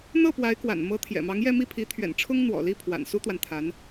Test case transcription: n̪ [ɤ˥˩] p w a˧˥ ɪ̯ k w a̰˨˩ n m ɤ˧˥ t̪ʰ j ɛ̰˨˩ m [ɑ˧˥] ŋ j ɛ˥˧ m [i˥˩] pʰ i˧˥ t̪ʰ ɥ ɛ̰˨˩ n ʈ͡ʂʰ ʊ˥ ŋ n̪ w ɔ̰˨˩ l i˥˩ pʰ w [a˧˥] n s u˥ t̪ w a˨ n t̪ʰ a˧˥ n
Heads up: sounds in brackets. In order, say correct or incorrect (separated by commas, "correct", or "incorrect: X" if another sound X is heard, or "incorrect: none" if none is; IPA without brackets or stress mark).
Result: correct, correct, correct, incorrect: a̰˨˩